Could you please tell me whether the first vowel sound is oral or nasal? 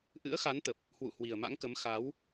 oral